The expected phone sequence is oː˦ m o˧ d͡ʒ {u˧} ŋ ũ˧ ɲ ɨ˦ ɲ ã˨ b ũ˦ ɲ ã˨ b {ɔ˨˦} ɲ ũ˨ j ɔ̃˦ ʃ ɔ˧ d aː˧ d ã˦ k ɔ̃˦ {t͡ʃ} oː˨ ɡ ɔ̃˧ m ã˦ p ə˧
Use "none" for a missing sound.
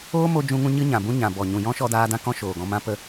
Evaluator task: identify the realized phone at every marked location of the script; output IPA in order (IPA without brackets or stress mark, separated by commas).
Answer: ũ˧, ɔ˨, ʃ